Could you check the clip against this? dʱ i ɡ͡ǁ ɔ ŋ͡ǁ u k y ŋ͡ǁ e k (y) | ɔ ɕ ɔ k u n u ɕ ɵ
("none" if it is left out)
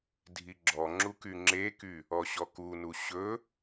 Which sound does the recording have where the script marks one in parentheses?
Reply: y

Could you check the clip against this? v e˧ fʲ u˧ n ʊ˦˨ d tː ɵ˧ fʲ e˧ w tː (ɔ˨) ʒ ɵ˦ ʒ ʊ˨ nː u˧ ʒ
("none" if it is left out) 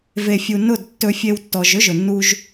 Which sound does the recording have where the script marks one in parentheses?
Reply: ɔ˨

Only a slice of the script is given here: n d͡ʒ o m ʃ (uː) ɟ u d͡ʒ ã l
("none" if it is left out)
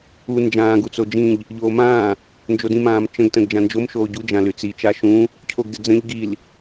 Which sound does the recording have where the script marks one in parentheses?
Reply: oː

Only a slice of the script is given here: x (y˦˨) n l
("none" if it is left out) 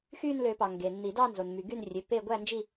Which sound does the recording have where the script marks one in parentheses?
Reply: y˦˨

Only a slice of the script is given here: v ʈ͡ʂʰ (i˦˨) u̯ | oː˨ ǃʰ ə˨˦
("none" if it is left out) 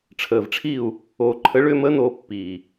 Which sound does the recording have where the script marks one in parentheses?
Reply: i˦˨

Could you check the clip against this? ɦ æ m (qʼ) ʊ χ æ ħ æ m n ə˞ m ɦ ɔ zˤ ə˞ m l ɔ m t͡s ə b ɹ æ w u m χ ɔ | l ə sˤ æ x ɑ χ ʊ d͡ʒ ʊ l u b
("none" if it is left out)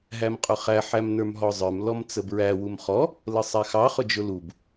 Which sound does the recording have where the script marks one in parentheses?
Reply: qʼ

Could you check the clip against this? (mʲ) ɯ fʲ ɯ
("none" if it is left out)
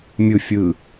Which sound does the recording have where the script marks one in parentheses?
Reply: mʲ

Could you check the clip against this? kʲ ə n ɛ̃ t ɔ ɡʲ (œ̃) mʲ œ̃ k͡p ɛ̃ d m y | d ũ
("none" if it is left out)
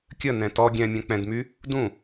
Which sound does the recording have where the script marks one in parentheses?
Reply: ɛ̃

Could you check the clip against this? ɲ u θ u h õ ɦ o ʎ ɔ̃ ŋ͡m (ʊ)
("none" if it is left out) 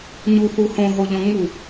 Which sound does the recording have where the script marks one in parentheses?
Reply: u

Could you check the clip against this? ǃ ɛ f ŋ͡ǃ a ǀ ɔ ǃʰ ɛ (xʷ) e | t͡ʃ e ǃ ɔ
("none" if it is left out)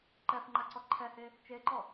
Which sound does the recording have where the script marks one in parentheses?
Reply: h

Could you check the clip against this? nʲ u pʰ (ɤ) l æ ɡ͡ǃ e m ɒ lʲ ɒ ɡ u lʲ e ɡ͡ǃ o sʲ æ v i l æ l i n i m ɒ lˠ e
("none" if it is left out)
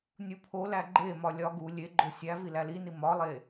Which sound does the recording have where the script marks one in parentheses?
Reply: o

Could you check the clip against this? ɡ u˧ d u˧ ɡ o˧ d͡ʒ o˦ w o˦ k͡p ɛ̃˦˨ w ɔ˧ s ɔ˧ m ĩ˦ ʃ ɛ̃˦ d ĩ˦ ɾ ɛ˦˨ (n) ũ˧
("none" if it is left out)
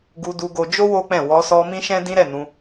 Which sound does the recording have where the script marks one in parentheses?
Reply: n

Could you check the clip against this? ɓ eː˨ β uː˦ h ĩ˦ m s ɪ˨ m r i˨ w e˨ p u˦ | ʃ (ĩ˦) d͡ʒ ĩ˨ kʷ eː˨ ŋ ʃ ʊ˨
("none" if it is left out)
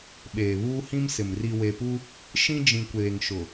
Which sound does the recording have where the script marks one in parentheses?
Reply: ĩ˦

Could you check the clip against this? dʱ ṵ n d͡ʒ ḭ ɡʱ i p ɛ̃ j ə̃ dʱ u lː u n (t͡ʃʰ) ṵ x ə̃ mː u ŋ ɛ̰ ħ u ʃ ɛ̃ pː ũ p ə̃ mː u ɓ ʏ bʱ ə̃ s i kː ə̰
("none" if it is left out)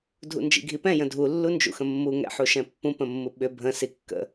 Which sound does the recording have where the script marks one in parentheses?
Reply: d͡ʒ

